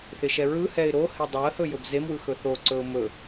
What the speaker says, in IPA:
θɪʃɛɹɯhɛɪ̯ ɾohɪ dˤoə̯hɵ jɵbzemwɯ xɵθoǀɵʊ̯ mɵ

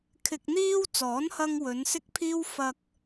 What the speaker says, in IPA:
kʰɪ˨k̚n̪iː˧w t͡sɔː˨˥nhɐ˧ŋwɵ˨˧n sɪ˥k̚pʰiː˥w fɐ˧k̚

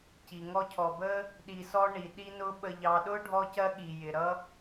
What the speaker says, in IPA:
ci˩ŋɔ˥cʰɔ˨ bə˥ | ɗi˨sɔ˦ɳi˩ ɗi˥nʊ˥ ɓə˨ʎɑ˨ɗʊ˥ ɖʱɔ˦cɜ˦ɠi˩jɪ˩ ɾʌ˥

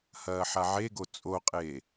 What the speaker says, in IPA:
hɐːħaʕeɡo t͡sʼoqʼeː

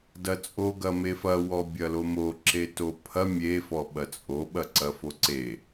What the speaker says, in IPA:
dɐt͡sʼo ɡɐmefɐ wɔbʲɐlomo ǁetopʰɐ mʲe fɔɓɐt͡sʼo ɓɐǀɐfoǀe

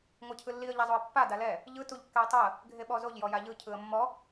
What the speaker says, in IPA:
ŋʷɤcʰɯlːiə̯ ʎazˤoə̯pːa dalɛ | ʎɯ tuʎkːɛə̯tˤɯə̯ | ɡʱeɓɔzoʎ jɔjaʎɯ cʰɯə̯mːɔ

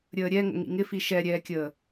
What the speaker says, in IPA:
ɾʲəːɾʲɛ ŋə̰ŋḭŋɪfi ʃɛɾʲɛːkʲəː

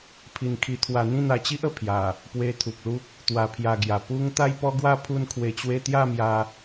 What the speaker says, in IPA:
pʰi˧nkʰi˧t̪ʰwa˧ n̪ĩ˥˧n̪a˧t͡ɕi˦ʔ ə˧ pʰja˨˩ | pwe˧t̪ʰu˨k̚lu˦k̚ | t̪wa˧pʰja˧ɡja˨˩ pu˦ŋ t̪a˥˧jpɔ˦ɡwa˥˧ pʰu˥˧nkʰwe˧t͡ɕwe˦ t̪ja˥˧mja˧

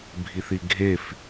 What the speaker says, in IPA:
bʱiθiɡʱef

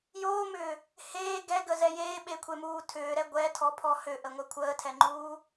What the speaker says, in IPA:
joːmʏː | heː ɡɛɡəzɛ jeːɓekʷʰemuː tʰʏːɾɛ ɡʷɛtʰɔpʰɔ hʏʔəŋʷɛ kʷʰəːtʰɛŋ͡ǃuː

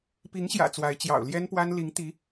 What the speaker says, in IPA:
pi˧˥ŋɕjä̰˨˩ t͡swa˧˥ɪ̯t͡ɕjɑ̰˨˩ʊ̯ ljɛ˥npwa˥n li˧˥ŋt̪i˧˥

